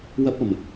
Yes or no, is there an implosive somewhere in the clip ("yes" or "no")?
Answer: no